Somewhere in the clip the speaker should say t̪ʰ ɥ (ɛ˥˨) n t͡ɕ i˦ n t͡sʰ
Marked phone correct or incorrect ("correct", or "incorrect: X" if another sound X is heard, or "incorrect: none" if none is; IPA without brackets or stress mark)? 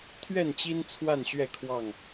correct